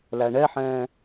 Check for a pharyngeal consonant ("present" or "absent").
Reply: present